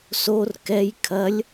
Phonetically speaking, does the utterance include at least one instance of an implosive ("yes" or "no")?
no